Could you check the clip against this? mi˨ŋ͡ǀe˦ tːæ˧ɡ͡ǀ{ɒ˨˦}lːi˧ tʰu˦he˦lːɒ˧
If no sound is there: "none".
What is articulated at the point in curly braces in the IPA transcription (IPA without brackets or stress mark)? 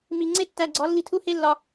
ɒ˨˦